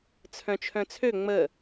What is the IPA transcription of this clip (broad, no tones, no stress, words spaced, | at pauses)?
t͡sʰœ̃t͡ʃʰœ̃t͡sʰø ŋ͡mə